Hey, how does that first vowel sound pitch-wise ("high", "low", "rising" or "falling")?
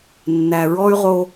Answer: low